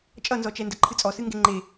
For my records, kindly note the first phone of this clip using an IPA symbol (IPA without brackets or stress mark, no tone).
t͡ʃʼ